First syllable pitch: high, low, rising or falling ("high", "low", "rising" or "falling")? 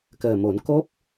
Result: low